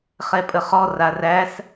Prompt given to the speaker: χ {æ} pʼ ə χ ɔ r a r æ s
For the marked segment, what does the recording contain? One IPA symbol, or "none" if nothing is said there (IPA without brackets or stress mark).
ɛ